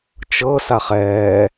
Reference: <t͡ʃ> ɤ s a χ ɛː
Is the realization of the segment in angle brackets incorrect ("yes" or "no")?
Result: no